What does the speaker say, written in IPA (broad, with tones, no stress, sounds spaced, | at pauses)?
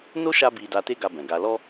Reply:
n o˦ ʃ a˧ b i˨ d a˧ t e˦ ɡ a˧ b ɛ̃˨ ɡ a˨ l ɔ˧